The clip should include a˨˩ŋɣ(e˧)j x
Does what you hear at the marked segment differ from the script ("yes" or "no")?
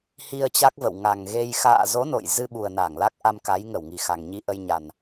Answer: no